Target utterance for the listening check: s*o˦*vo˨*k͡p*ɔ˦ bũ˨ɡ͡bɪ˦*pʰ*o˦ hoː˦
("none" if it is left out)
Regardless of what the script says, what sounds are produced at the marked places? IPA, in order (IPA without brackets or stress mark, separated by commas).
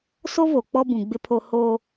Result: o˦, k͡p, pʰ